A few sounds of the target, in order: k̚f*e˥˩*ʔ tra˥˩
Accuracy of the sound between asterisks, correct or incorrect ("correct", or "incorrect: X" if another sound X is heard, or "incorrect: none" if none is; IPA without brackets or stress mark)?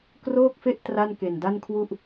correct